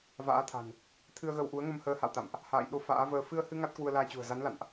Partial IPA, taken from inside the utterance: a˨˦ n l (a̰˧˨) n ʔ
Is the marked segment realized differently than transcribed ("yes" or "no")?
no